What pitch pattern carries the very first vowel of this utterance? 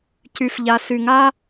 low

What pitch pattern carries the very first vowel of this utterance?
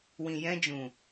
low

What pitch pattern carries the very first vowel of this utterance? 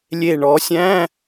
low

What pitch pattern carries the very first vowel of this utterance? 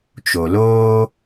low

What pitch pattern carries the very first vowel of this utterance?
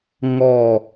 falling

